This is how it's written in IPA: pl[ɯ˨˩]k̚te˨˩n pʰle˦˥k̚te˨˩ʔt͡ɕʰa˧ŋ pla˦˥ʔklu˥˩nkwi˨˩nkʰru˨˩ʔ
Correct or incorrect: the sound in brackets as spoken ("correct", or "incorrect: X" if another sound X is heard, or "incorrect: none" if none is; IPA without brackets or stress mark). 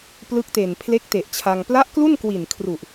incorrect: ɯ˦˥